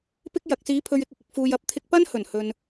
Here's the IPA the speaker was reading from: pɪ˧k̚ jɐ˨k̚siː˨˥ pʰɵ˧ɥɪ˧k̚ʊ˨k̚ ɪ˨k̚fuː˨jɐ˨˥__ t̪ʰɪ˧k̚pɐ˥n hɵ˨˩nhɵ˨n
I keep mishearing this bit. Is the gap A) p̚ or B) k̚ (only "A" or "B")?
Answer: A